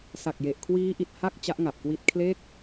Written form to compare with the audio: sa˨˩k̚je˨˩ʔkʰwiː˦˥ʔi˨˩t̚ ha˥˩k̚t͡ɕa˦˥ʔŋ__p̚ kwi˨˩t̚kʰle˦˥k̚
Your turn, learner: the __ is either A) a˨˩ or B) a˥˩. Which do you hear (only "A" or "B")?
A